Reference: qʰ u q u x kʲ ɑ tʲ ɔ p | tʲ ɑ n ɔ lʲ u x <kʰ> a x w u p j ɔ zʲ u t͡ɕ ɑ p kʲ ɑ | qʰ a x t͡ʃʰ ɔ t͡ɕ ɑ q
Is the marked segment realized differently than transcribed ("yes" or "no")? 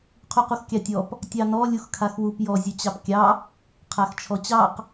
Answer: no